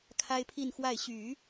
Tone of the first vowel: high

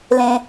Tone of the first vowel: low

